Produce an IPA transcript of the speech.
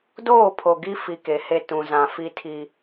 d oː˦˨ pʰ o˨ ɡ i˦ f i˨ k e˨ h e˦ t ũ˨ z ã˨ f i˦ tʰ i˦

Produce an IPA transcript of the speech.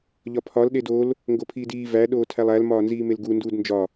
ʎ ɒ pʰ ɒ l ɗ e d o l | ŋ ɡ o pʰ iː d iː v æ ɗ oː tʰ æ lˠ æ l m ɒː n z iː m e l ɡ u n d uː d n d͡ʒ ɒ

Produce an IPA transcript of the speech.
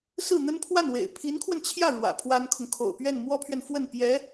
s ɹ̩˥˩ n̪ ə˥ n pʰ w a˥˩ n w ḛ˨˩ ɪ̯ pʰ i˧˥ n kʰ w ə˧ n t͡ɕʰ j ä˥˩ ɻ w ä̰˨˩ pʰ w a˥ n kʰ ʊ˨ ŋ kʰ o̰˨˩ ʊ̯ p ɥ ɛ˥˩ n m w ɔ˥ pʰ ɥ ɛ˨ n f w ə˥˩ n p j ɛ˧˥

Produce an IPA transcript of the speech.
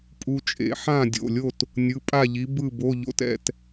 pʼ u˧ t͡ʃʼ ḛ˨˥ ħ ã˥˨ dʲ o̰˩˧˩ lʲ o˥˨ t | nʲ ɯ˩˧˩ pʼ a˥˨ ʎ i˨˥ b ɯ˥˨ b o˧˥˧ ʎ o̰˦˥ t ɛ̰˧ t

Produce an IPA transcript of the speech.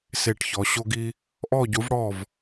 s e˥˧ ʈ ç ɔ˧˥ ɕ o˥ ɡ i˥ | ʔ ɔ˥˧ ɟ u˧˥ v ɽ ɔ˥˧ v

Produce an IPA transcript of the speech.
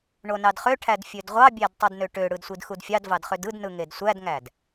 ɳ o n ɑ d χ ø ʈʰ æ d fʲ ø d ʁʷ ɑ bʲ æ d tˤ ø d n ø ʈ ø ɽ ɯ d sʷ i d x u d fʲ ɑ d v ɑ d χ ø d ɯ d n ɯ ŋ e d sʷ æ d ŋ æ d

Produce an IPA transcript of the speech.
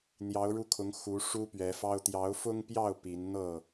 n̪ j ɑ˨˦ ʊ̯ ɻ u˧ kʰ ʊ˨˦ ŋ x u˨˦ ʂ u˦ p ɥ ɛ˨˦ f ɑ˦ ʊ̯ t̪ j ɑ˨˦ ʊ̯ f ʊ˦ ŋ p j ɑ˥˨ ʊ̯ p i˨˦ n n̪ ɤ˥˨

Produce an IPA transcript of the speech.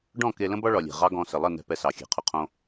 ɖ ɔ̃˦˨ k e˧ l ə̃˦ b ɒ˦ ɭ ɒ˨ lʲ e̤˨ ʁ ɑ˦ ɡ ɔ̃˧ s ə˨ lˠ ə˦˨ n ɛ̤˧ p ɛ˧ s ɑ˨ xʲ e̤˨ qʰ ʊ˧ qʰ õ˦

